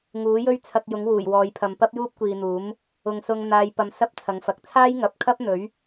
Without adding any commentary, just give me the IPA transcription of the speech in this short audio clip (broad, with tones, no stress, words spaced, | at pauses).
ŋuː˨˥jɵ˥ɥ t͡sʰɐ˧k̚jʊ˨˥ŋ wuː˨˩jwɔː˨˧jpʰɐ˨m pɐ˥p̚juː˥p̚kʷiː˨n̪uː˨˥m | ʊ˨ŋsʊ˧ŋ n̪aː˨˧jpɐ˨˧m sɐ˥p̚t͡sʰɐ˨˥ŋfɐ˨˥k̚ t͡sʰaː˥jŋɐ˨˥p̚kʰɐ˥p̚n̪ɵ˨˥ɥ